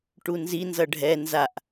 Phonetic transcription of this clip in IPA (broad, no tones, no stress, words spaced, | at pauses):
ʈunzi nzʌɖʱɛ nzaʔ